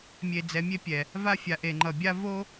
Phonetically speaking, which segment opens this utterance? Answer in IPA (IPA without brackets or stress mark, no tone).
mʲ